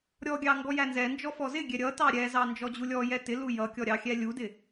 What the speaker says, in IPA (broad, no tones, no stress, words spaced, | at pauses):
ɾʲɔɡʲɑ ŋɡɔjænzɛnd͡ʒɔ fɔzɪɡʲɛ ɾʲʌtɑ ɾʲɛzɑ nd͡ʒɔd͡ʑulʲɔjɛ tɪ lujʌkʲɔ ɾʲɑxʲɛlʲudɪ